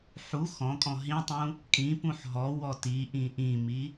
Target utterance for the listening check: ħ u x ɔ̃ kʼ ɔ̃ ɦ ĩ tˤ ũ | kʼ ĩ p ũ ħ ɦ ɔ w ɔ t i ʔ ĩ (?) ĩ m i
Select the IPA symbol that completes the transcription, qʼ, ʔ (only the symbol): ʔ